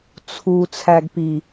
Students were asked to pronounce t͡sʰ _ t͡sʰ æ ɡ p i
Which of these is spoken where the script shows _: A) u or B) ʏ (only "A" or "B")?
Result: A